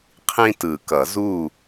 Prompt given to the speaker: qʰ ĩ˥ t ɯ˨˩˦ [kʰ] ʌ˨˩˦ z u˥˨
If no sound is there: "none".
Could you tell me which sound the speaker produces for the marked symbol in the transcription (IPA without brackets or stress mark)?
k